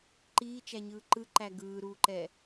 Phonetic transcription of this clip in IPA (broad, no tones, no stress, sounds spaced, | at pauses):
ǃ iː t͡ʃ æ ɲ ɯː ǃ ɯ ǃ æ ɡ ɯː ɾ uː ǃ ɛ